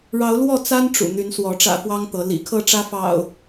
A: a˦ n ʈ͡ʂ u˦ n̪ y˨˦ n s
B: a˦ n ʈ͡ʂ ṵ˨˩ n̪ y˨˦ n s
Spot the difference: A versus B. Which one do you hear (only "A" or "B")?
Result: B